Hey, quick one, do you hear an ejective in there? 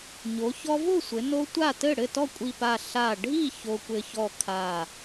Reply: yes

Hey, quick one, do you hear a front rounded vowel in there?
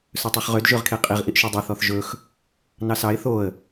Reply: yes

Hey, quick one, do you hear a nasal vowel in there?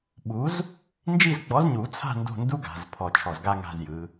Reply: no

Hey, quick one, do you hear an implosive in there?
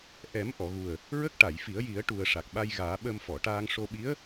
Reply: yes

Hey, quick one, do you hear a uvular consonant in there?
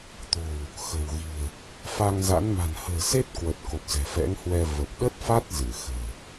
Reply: no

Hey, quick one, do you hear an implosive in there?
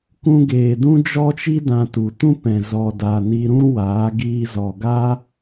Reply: no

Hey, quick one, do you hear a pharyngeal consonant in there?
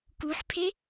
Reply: yes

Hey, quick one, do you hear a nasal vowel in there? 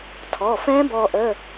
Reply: yes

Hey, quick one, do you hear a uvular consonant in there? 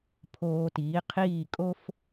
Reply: yes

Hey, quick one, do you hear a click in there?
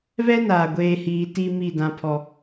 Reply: no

